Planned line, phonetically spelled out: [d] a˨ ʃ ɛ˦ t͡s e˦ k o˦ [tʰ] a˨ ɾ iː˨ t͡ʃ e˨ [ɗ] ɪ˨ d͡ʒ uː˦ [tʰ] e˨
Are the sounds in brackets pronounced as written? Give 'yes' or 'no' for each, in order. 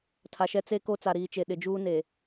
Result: no, no, yes, no

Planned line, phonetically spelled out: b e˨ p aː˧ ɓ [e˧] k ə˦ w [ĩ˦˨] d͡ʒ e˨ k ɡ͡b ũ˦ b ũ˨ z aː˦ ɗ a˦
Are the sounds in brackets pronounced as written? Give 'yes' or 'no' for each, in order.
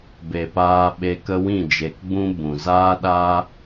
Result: yes, yes

